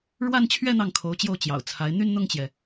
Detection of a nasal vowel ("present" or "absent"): absent